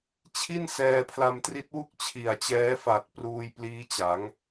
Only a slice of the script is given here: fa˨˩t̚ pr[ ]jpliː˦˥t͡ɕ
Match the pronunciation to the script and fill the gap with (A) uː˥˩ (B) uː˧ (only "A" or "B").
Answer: B